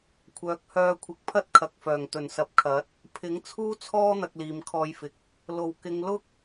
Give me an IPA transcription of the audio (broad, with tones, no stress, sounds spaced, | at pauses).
kʷʰ œː˨˥ k̚ h œː˧ kʷʰ ɪ˨˥ k̚ pʰ ɐ˥ t̚ kʰ ɐ˨ k̚ f œː˨˩ ŋ t̪ ɵ˨˩ n s ɐ˨˥ p̚ kʰ ɐ˨˥ t̚ | pʰ ɪ˨˥ ŋ t͡sʰ uː˥ t͡sʰ ɔː˥ n̪ ɐ˧ k̚ l iː˨ m kʰ ɔː˧ j f ɪ˨ k̚ | l o˨˩ w k ɪ˨˧ ŋ l ʊ˥ k̚